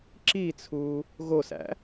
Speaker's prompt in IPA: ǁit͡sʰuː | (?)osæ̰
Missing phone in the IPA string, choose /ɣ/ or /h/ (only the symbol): ɣ